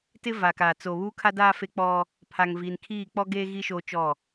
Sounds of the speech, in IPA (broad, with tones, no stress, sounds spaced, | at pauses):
t ɪ˦ v a˨ k aː˨ t͡s o˨ β uː˦ kʰ a˦ d aː˦ f e˦ k͡p ɔ˦ | pʰ a˨ ŋ v i˨ n kʰ iː˦˨ k͡p ɔ˦ ɡ eː˦ ɣ i˦ ʃ oː˦ t͡ʃ ɔ˦˨